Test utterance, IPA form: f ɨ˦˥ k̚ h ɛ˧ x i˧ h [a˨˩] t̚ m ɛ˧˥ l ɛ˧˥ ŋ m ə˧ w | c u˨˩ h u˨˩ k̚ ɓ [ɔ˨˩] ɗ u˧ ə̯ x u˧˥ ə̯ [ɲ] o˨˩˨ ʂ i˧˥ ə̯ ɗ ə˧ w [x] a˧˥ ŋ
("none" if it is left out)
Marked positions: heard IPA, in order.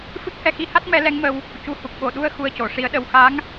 a˦˥, o˨˩, c, x

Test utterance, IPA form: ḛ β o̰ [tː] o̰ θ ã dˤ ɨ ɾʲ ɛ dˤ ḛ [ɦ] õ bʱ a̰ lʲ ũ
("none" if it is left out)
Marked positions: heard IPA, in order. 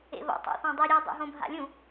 tˤ, ɦ

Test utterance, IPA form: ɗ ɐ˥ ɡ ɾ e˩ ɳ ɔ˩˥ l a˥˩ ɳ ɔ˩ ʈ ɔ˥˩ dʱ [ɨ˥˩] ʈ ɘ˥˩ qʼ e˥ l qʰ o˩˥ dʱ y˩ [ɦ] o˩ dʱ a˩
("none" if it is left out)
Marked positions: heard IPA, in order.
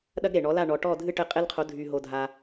ɨ˥˩, ɦ

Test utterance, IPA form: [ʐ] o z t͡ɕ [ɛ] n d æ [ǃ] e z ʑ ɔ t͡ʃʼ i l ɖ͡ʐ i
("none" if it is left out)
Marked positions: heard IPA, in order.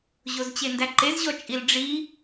ʑ, e, ǃ

